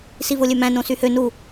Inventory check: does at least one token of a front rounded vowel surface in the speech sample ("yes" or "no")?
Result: yes